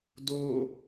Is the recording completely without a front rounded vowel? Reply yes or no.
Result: yes